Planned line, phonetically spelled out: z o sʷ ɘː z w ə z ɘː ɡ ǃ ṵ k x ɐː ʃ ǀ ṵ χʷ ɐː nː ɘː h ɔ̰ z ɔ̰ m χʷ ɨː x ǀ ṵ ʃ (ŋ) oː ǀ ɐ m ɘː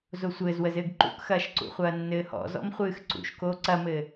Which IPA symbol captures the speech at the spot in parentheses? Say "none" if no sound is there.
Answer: k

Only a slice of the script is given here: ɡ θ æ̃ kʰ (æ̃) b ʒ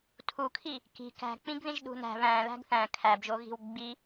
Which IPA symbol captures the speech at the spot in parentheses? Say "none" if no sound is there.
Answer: æ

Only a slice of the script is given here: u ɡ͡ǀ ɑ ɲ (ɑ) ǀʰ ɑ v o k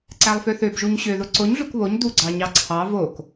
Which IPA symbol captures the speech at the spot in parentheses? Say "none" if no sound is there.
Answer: ɑ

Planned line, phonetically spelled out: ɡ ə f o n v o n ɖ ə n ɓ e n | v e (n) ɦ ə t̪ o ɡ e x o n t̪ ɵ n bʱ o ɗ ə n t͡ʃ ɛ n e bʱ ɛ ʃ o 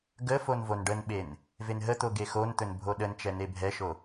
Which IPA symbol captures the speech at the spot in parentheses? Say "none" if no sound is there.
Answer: n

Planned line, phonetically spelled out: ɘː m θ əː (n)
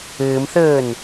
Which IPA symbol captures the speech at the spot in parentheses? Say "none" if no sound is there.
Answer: n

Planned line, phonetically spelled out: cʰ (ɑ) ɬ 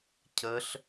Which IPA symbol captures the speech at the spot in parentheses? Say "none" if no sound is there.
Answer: ə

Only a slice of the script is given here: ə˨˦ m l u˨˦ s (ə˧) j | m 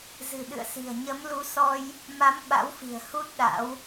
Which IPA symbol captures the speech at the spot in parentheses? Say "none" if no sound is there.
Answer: ɔ˧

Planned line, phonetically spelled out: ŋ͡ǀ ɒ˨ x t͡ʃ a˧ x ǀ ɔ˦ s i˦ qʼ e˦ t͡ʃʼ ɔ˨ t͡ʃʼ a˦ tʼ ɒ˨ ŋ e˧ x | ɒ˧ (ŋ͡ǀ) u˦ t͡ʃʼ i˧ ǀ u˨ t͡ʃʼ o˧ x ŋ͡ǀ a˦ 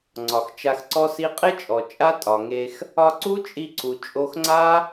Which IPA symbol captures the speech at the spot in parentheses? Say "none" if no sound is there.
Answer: ǀ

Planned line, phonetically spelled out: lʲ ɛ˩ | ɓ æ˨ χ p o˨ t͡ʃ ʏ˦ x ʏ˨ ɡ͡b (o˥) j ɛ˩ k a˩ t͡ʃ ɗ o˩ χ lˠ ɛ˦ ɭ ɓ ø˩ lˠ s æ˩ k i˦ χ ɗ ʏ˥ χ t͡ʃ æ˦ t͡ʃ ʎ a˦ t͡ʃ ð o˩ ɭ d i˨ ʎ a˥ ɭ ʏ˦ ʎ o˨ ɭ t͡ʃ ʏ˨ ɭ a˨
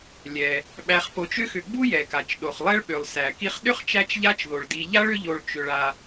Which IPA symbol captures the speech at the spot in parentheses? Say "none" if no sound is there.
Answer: u˥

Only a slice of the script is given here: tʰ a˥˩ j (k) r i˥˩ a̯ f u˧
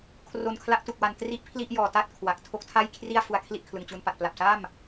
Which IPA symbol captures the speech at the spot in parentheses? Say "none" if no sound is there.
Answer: kʰ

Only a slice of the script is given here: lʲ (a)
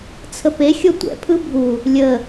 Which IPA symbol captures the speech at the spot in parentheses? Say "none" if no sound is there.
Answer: ə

